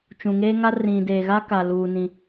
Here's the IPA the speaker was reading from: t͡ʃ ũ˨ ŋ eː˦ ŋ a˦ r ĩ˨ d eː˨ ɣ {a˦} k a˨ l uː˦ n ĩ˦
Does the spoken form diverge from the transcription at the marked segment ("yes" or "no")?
no